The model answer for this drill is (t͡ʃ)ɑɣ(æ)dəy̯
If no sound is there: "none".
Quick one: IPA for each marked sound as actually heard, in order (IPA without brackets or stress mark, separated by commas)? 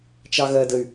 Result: t͡ʃ, ɜ